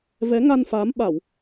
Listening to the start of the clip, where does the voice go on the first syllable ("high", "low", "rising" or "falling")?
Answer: rising